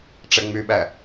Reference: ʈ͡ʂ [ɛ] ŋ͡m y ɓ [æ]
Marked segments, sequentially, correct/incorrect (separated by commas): correct, correct